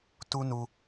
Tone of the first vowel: high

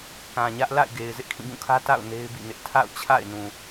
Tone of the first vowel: low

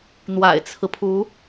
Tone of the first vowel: low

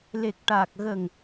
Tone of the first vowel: low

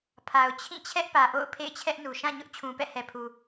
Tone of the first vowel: low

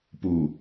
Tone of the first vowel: low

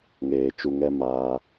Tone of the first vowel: low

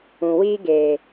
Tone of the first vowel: low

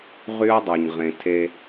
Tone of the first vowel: high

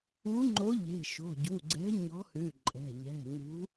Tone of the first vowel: rising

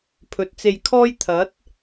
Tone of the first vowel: low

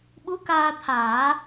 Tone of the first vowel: rising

